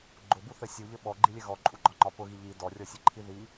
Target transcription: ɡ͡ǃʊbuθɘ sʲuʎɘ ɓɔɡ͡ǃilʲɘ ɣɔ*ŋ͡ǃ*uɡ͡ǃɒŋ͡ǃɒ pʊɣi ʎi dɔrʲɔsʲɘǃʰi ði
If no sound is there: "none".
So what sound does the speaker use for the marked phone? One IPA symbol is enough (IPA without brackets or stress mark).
ǃʼ